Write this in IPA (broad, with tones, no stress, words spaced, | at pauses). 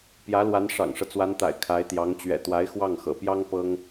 pjä˧˥lwa˧˥n ʂɑ̰˨˩ŋʂɤ˦t͡swa˧˥nt̪a̰˨˩ɪ̯ kʰa˧˥ɪ̯t̪jɑ˧˥ŋ t͡ɕɥɛ̰˨˩t̪wa˧˥ɪ̯ xwɑ˥˩ŋxɤ̰˨˩pjɑ˥ŋ pɤ˥ŋ